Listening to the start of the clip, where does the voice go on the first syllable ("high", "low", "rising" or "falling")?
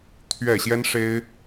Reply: falling